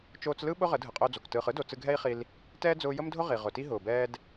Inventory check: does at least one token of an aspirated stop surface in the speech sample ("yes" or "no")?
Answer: no